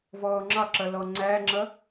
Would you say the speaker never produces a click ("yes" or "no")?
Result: no